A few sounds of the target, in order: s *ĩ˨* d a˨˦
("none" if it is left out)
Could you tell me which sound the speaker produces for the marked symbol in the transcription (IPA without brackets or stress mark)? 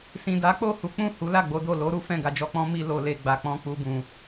ĩ˨